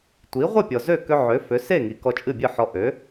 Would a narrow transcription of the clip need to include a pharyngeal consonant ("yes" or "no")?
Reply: yes